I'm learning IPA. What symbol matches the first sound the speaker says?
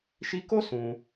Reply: ʃ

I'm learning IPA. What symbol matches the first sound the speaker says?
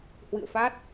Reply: h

